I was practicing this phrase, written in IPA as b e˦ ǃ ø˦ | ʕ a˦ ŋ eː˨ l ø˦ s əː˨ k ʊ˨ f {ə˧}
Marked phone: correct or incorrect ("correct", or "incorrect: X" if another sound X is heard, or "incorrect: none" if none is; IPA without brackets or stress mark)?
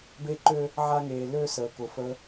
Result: correct